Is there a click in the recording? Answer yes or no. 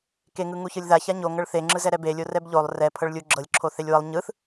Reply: yes